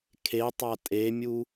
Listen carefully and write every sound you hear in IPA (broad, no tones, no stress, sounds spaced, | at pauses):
kʰ e tˤ a tʼ e mʲ u